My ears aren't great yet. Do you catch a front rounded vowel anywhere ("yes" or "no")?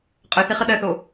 yes